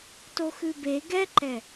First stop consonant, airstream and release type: plain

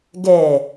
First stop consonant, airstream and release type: plain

